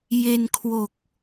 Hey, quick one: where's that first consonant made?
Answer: palate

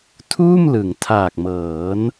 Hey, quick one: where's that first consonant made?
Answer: tongue tip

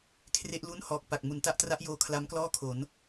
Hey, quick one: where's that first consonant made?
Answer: velum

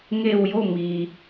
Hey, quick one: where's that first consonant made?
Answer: velum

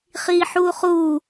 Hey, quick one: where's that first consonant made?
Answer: uvula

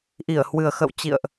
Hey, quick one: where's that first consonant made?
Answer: throat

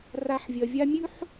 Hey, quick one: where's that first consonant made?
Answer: tongue tip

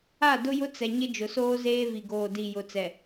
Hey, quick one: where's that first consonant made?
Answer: tongue tip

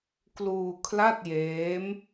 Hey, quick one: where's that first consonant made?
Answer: velum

